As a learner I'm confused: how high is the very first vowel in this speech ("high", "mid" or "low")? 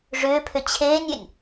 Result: high